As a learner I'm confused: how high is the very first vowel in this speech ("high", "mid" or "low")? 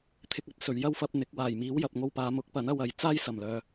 high